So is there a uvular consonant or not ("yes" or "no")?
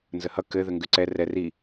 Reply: no